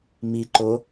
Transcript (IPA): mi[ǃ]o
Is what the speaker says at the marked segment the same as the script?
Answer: yes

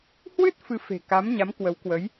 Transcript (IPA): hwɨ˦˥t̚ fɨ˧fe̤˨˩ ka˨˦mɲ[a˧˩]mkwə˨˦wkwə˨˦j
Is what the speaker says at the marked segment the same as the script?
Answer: no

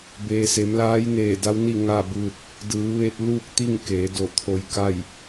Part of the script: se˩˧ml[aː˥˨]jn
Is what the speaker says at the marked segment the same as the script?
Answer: no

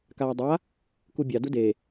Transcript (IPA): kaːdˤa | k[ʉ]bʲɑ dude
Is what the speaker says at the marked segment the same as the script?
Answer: no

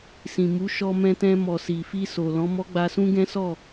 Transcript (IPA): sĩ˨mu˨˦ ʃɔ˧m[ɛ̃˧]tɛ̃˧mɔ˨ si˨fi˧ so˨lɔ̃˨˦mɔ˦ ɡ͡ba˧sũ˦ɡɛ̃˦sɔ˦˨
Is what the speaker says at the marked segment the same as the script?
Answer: yes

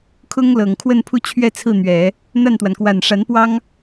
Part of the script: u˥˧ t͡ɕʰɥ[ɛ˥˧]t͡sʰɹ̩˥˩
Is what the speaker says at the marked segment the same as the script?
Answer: yes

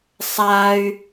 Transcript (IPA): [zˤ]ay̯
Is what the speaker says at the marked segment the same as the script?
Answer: no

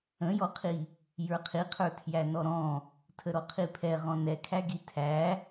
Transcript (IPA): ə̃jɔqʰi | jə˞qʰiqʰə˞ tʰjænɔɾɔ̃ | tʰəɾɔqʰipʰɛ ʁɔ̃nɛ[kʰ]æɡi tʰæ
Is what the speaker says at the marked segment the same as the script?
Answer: yes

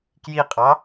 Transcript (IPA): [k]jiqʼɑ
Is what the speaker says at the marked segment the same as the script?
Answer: yes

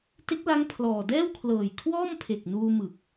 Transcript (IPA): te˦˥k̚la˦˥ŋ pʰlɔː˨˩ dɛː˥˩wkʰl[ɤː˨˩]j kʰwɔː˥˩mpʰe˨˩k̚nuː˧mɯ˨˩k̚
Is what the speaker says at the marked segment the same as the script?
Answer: yes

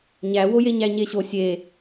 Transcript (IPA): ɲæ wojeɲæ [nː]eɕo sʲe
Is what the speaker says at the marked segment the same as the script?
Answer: no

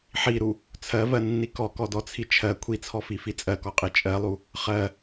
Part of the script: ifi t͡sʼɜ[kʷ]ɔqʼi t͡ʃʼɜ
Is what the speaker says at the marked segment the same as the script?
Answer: no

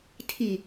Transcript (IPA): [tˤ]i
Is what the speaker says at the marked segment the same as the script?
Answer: no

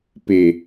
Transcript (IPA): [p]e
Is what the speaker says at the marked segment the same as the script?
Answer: yes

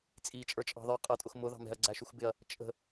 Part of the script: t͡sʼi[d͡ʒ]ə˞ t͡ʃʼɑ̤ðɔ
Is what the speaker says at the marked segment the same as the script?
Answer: no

